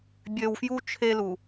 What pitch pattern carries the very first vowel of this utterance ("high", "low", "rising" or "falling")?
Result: low